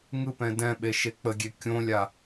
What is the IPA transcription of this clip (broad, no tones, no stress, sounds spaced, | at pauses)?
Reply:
ŋ ɯ p ɛ̃ d ɛ̃ ɓ e ʃ e k͡p ə ɡʲ e kʲ õ lʲ a